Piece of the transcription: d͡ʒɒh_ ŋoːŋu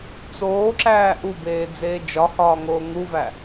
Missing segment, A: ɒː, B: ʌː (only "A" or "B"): A